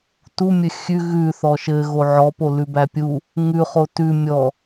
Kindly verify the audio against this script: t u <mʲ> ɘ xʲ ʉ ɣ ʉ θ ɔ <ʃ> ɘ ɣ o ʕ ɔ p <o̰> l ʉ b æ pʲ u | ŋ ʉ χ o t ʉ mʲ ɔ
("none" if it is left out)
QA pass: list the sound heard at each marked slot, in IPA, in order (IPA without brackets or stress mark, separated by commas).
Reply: mʲ, ʃ, o